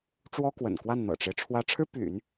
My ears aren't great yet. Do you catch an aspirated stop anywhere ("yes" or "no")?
yes